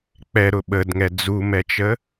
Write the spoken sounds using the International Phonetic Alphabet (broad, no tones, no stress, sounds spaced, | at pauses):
k͡p ɛ ɾ ʊ ɓ ə d ŋ ɛ d͡z u m ɛ t͡ʃ ə